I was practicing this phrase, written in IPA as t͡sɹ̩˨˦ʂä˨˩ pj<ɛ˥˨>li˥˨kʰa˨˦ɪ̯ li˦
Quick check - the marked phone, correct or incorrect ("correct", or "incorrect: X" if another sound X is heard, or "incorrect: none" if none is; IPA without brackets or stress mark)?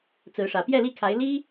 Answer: correct